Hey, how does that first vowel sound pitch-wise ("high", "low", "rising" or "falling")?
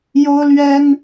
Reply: high